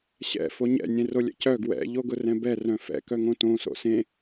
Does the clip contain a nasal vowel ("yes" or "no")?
yes